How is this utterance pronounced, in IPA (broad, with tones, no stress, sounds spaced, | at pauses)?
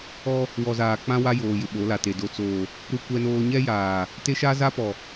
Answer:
ɔ˦ | w ɔ˨ z aː˨ k͡p ã˦ w a˦ j oː˨ j ɪ˨ ɓ o˨˦ l a˨ t e˨ d o˨ t͡s oː˨ | ɾ u˦ kʷ ɛ˦ n oː˦ ɲ ɛ˦ j aː˨ | t e˦ ʃ a˦ z a˦ p ɔ˨